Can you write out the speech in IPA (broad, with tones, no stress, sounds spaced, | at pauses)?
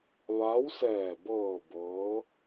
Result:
ʋ a˧˥ w s ɛː˧˩ b ɤː˧˩ b ɤː˧˥